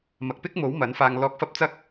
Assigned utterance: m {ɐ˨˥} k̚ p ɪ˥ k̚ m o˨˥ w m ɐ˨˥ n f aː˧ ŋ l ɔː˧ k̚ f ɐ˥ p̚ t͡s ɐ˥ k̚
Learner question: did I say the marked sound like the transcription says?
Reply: no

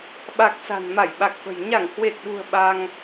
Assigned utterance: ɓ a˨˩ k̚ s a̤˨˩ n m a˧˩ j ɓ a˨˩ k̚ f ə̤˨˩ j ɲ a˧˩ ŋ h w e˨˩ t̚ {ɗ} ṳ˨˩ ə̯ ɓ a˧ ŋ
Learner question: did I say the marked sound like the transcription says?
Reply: yes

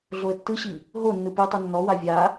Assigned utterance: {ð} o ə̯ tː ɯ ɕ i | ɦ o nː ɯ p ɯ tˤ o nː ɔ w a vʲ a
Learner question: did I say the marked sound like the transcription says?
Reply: no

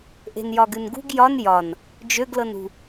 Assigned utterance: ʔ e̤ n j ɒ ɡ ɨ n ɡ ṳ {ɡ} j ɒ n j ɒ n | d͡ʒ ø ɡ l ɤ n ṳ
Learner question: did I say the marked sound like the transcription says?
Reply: yes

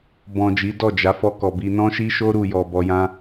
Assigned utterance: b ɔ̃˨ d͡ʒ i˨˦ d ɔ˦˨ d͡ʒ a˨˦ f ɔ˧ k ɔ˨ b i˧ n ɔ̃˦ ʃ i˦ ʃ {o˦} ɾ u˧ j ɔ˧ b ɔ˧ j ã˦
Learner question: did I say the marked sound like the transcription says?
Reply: yes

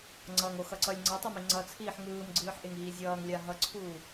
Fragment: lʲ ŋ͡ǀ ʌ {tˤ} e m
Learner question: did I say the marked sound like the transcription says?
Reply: yes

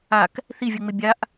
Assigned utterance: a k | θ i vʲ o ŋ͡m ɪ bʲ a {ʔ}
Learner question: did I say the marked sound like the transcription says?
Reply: yes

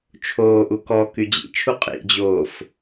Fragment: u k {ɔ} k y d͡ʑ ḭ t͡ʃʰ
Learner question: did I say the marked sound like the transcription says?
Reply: yes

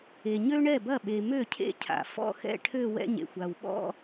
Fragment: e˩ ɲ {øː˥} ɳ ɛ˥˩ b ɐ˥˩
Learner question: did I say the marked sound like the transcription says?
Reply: no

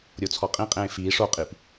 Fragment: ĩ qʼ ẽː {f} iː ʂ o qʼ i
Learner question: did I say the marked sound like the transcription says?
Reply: yes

